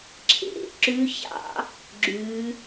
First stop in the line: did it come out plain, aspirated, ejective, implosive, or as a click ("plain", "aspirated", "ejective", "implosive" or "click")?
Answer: click